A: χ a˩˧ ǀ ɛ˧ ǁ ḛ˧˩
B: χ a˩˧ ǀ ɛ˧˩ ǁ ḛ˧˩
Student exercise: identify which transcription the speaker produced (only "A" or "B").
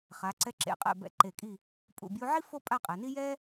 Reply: A